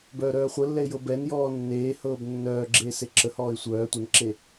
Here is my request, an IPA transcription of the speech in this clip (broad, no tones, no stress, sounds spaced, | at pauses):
b œː ɾ œː χʷ ə lː ɛ ɪ̯ j ɤ b ɛ n j ɔː nː eː h ɤː b nː œː ɡ͡ǁ eː s e ǁ ə h ɔː ɪ̯ sʷ œː tʷ ə n ǁ e